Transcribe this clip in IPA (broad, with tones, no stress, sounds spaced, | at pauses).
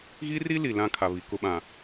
ɣ i˦ r i˦ l i˨ l ã˦ kʰ a˨ β i˨ k ʊ˦ ɓ ã˨